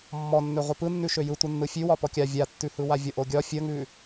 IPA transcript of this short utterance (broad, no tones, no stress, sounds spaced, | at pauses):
mː ɔ nː ø ʁʷ ɯ p ɯ nː ʉ ʃ ø j ɯ tʷ ɯ nː ɯ fʲ ʉ w ɒ p ɔ kʲ a vʲ a tː ʉ h ɯ w a vʲ ɔ ʔ o ɡʲ ɒ fʲ ə ŋ ʉ